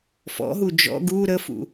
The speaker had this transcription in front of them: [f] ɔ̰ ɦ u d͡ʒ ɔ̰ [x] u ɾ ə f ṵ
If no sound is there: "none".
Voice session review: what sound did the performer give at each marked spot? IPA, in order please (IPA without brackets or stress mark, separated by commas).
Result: f, ɡ